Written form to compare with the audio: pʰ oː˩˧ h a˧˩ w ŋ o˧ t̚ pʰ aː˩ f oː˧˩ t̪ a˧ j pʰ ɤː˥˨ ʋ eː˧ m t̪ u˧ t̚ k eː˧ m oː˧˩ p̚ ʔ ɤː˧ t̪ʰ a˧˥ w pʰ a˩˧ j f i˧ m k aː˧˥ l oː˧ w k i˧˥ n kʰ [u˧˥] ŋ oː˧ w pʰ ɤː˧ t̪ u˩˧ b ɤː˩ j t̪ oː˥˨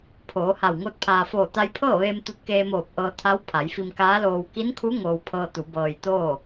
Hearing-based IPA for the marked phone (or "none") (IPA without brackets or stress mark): u˧˥